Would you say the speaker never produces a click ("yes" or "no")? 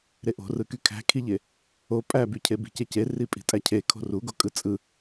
yes